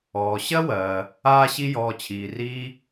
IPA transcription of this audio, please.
ɔː˩ ɕ ɜ˥ w ɜː˩ | aː˥ ɕ i˥ j ɔː˧ t͡ɕʰ iː˩ r iː˥

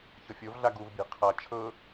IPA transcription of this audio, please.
ç ɤ fʲ o v ɮ a ɡ u v bʲ e̤ qʰ a t͡ʃʰ ɤ

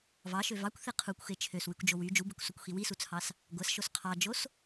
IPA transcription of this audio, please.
v ɑ ʃ ø v ɑ kʷ θ e qʰ u kʷ x e t͡ʃʰ ø s w y kʷ d͡ʒ o w y d͡ʒ u b e kʷ s o kʷ x i w i s u t͡sʰ ɑ s | ɡʷ æ s ʃ o s qʰ ɑ d͡ʒ o s

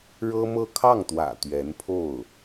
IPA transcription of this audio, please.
ɻ ɤ˥ m ɤ˥˧ kʰ ɑ˥˩ ŋ t̪ w ä̰˨˩ t̪ ɥ ɛ˧˥ n pʰ o˥˩ ʊ̯

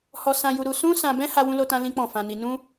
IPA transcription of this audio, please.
h ɔ˧ s ã˧ j u˧ ɾ u˧ s ũ˦ s ã˧ b ɛ̃˦ h a˦ w ũ˦ l o˦ t ã˦ l ĩ˦ k͡p ɔ̃˦˨ f ã˧ n i˧ n ũ˦

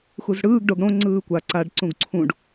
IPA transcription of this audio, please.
x u z ɽ ɯː ɡ ɖ o ɡ ɽ õ ŋ͡ǀ ɯː kʷ a ǀ a ɖ ǀ ũ ɡ ǀʰ ũ ɖ

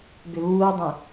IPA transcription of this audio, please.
b ʏ β uː dˤ ẽ

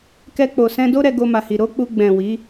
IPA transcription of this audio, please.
k ɛ˧ k͡p o˨ s ɛ̃˧ d o˦ ɾ ɛ˧ ɡ o˧ m a˨ h i˨ ɾ o˨˦ k͡p u˧ ɡ͡b ɛ̃˨ w i˨˦

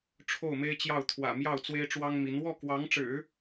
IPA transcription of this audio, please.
ʈ͡ʂʰ o˥˩ ʊ̯ m e˥ ɪ̯ t͡ɕ j ɑ˥˩ ʊ̯ t̪ʰ w ä̰˨˩ m j ɑ˥˩ ʊ̯ t͡s w e˥ ɪ̯ ʈ͡ʂ w ɑ˥ ŋ m i˧˥ n w ɔ˥˩ k w ɑ˧˥ ŋ ʈ͡ʂ ɻ̩˨˩˦

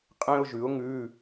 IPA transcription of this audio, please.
qʼ ẽ˥ ʊ̯ ʒ ʉ˨˥ ʊ̯ ŋ ʉː˧˥˧

